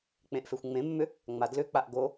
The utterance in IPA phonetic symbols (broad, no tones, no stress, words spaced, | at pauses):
k͡pẽʔfexʷŋ͡mẽmːʏ | ŋ͡madlʏk͡paʔ ɡo